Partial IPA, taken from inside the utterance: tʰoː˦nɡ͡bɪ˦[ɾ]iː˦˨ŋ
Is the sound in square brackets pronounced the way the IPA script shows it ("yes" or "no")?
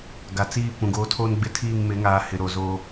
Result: no